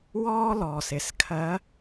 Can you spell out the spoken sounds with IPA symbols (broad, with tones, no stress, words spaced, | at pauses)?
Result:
wɔː˥lɔː˩s ɪ˩˧skʰɜ˧˥